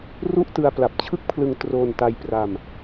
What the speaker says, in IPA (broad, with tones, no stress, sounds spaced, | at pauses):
r u˥˩ ʔ t ɯ˧ a̯ p l a˨˩ p̚ t͡ɕʰ ɯ˥˩ k̚ pʰ l ɯ˧ ŋ t r o˧ n t a˧ j p r a˧ m